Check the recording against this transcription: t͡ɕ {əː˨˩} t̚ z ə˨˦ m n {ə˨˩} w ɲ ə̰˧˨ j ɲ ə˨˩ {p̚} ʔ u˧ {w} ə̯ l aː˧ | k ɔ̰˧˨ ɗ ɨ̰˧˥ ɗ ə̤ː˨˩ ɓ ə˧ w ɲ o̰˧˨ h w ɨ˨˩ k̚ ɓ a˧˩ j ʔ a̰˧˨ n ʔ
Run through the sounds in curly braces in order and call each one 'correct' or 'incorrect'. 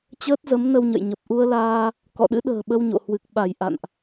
incorrect: əː˦˥, incorrect: ə˧, correct, incorrect: none

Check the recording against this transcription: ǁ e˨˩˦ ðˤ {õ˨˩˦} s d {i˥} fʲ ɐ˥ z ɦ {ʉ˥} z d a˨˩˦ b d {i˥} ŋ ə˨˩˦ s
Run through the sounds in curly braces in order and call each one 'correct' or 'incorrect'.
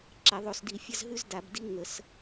incorrect: o˨˩˦, incorrect: i˨˩˦, correct, correct

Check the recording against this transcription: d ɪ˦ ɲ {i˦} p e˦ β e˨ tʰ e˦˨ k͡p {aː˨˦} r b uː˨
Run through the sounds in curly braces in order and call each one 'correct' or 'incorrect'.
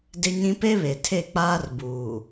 incorrect: ĩ˦, incorrect: aː˦

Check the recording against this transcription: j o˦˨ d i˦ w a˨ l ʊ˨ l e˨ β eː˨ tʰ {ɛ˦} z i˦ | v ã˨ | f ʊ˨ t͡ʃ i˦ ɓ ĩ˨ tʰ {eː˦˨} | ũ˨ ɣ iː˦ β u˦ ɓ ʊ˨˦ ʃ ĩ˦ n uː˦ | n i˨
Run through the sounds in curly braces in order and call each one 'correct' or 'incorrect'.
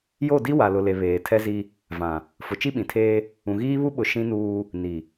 correct, incorrect: eː˦

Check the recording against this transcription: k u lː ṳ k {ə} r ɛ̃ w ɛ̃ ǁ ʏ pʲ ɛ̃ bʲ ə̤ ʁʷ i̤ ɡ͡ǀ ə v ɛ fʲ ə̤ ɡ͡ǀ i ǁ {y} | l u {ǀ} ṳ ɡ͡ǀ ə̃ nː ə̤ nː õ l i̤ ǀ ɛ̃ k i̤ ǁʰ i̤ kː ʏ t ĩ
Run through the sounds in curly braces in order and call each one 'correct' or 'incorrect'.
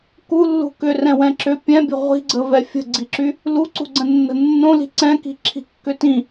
incorrect: ʏ, correct, correct

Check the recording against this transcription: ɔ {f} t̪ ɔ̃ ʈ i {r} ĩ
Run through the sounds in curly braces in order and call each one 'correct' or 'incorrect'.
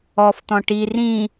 correct, correct

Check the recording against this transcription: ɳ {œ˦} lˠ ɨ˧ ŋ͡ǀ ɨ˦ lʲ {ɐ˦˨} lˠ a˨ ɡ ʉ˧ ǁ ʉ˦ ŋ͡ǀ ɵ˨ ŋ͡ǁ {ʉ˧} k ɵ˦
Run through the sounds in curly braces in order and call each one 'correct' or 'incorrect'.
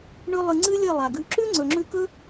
incorrect: ɵ˦, correct, correct

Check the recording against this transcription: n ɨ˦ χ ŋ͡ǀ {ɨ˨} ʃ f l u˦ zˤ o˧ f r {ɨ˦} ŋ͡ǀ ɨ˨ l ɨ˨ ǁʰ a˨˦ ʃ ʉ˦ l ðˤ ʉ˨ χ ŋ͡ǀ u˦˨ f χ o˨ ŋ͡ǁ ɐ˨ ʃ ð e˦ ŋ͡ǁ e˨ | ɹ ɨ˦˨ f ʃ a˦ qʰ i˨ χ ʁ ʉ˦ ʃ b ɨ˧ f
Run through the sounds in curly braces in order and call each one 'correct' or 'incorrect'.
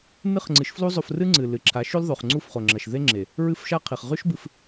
incorrect: ɨ˨˦, correct

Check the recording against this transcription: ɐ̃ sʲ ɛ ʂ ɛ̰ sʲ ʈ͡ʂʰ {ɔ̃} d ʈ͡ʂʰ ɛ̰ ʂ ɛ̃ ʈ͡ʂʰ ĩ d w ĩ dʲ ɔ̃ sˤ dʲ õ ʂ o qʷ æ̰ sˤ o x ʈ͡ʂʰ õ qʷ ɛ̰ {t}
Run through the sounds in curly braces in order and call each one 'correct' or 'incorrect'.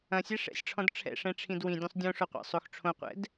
correct, incorrect: d

